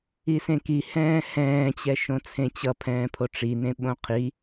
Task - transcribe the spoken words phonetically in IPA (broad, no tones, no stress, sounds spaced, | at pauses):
i s ẽ k i h ɛ̃ː h ɛ̃ː t͡ɕ ɛ ʃ õ t͡sʰ ẽ t͡ɕ ʌ pʰ ɛ̃ː pʰ o ʈ͡ʂ i n ẽ ɓ õ qʰ i